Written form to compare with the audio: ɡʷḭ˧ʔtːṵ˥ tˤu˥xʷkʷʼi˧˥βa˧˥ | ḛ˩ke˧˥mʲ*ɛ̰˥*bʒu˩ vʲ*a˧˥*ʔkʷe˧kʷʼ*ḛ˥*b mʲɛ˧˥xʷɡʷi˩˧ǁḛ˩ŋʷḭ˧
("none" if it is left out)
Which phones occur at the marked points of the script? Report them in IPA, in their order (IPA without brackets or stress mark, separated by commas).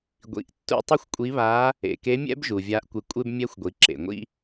ɛ̰˥, a˧˥, e˥